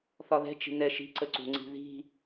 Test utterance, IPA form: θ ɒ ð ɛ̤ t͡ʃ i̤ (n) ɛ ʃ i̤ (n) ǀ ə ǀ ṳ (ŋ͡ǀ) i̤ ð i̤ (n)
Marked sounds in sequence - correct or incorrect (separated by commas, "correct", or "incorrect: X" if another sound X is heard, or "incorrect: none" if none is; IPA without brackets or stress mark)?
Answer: correct, incorrect: none, correct, incorrect: none